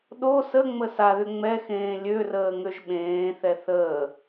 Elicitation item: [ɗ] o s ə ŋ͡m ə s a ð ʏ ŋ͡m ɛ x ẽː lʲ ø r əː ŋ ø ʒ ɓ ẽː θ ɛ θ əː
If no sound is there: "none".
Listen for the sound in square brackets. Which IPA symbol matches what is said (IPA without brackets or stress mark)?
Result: ɗ